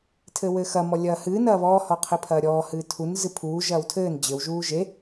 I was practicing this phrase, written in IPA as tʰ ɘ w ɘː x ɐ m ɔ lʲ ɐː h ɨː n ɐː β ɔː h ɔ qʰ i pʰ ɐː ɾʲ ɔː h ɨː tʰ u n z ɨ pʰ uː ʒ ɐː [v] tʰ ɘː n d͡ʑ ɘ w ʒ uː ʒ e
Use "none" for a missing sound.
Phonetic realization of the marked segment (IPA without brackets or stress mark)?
w